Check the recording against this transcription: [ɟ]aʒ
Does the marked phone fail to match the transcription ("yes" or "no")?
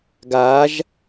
yes